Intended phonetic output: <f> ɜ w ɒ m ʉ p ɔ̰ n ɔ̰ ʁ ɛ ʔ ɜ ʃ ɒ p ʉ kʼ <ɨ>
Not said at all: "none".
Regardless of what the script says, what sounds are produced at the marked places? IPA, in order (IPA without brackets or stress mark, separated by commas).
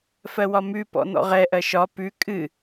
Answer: f, ɨ